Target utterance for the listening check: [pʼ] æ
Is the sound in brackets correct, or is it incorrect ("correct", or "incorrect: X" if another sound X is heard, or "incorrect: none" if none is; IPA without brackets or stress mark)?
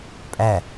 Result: correct